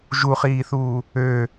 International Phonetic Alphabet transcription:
ʒuχiːθuː | ø

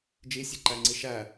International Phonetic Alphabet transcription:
d͡ʒisʲeǃæŋ͡ǀi ʃæ

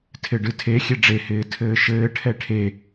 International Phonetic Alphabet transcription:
tʰɪɖɨtʰe xʲeɖ͡ʐe hɪːtʰɘːʃɘːʈʰɛ ʈʰe

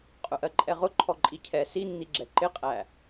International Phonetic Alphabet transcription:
qʼʊʔɜǃʼɛʁʊ ǃʰɔǃʼicʰɛ sinːiɡ͡ǁɛ ǃɪqʼæ

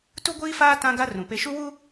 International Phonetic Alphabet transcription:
tu˦ɡʷiː˦faː˦ tã˦ɡa˦ rũ˨pe˦ ʃu˦wu˦

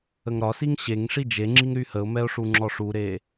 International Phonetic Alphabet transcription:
əŋɾɒsiŋ ɕeŋ ʂid͡ʒeŋ͡ǁiŋ ɾyhəʊ̯mɛʊ̯ ʂuŋ͡ǁɔʂuɾe

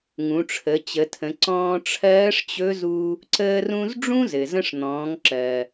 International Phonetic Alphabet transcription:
ŋũ˩˧ʈ͡ʂʰə˩˧t͡ɕə˩˧tʰə̃˩˧ ǀɔ̃ː˧ʈ͡ʂʰɜː˧˥ʂt͡ɕɵ˧˥zu˧ | ǀəː˧rũ˧z ɖ͡ʐũ˥zɘ˩zə̃˧ʂ n̪ɔ̃ː˩˧ŋǁɜ˩

